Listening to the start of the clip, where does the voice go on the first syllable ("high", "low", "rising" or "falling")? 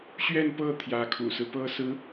falling